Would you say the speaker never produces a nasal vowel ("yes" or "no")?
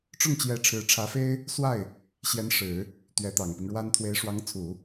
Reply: yes